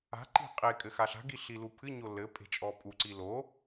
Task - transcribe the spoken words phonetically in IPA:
a̤ ǃi̤qʼekʼɘ xaɬa̤ɡi ɬilupʰɨɲo lɘ pʼe̤t͡ʃʼɔpʼuǀi lo

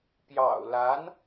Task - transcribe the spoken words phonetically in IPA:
pjɑ̰˨˩ʊ̯la˧˥n

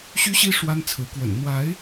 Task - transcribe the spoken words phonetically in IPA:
ɕy˦ɕi˦ ʂwa˦nt͡sʰɹ̩˨˦kwə̰˨˩n n̪wa˨˦ɪ̯

